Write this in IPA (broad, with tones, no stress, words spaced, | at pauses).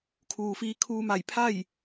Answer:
kʰuː˩fiː˧ kʰuː˧ma˧˩j pʰa˥˨j